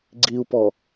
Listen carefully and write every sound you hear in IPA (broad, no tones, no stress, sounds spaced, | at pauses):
ɡ͡ǀ i u̯ p ɔ